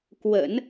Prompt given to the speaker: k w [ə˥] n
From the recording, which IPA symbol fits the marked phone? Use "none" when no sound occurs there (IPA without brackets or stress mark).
ə̰˨˩˦